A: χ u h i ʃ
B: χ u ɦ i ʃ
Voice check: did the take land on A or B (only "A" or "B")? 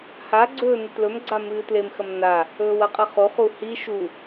A